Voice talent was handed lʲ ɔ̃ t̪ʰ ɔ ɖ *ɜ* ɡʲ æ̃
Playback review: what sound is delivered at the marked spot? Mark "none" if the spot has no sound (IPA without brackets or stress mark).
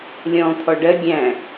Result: ɜ